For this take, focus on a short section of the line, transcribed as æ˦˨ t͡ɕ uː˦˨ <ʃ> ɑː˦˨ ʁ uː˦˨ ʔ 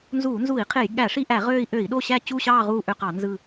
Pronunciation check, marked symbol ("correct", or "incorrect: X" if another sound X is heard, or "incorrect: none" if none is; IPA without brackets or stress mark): incorrect: ɕ